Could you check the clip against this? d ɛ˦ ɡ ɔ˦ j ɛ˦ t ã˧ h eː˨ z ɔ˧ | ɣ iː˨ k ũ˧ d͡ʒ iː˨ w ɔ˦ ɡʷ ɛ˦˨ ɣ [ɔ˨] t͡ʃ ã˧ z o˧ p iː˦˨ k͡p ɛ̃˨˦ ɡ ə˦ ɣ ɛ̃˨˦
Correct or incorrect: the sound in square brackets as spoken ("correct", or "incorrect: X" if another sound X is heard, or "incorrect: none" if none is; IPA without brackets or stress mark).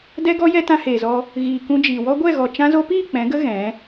correct